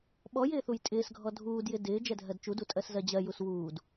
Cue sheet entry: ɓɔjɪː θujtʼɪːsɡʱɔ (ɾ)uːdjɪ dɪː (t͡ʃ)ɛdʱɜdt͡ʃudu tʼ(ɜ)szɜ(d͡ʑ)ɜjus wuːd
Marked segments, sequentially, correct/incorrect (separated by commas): incorrect, incorrect, correct, correct